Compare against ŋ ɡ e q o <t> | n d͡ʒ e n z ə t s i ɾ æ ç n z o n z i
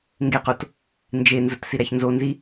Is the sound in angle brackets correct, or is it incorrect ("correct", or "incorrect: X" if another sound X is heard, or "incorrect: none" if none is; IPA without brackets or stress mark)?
correct